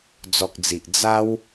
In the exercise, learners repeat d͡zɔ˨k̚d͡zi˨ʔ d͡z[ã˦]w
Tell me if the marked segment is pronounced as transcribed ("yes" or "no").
no